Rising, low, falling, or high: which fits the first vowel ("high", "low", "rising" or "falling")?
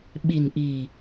low